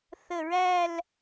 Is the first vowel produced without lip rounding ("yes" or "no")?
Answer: yes